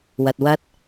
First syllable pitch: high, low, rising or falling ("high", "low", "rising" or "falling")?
low